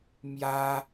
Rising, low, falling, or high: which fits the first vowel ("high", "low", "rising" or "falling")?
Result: high